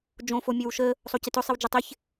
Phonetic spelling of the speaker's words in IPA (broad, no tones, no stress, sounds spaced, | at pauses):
d͡ʒ õ f o mʲ ə w ʃ ə | sˤ o c ɪ t ʊ sˤ ɪ w d͡ʒ ʊ tˤ ɪ ç